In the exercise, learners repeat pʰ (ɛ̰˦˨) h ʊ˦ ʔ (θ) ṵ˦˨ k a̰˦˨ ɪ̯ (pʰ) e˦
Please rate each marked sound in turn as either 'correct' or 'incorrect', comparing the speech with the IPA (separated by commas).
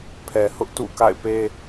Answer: incorrect, incorrect, incorrect